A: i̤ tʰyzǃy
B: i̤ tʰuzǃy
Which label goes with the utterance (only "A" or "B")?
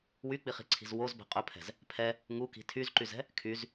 A